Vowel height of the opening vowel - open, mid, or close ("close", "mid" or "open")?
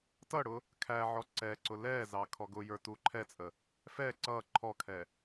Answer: mid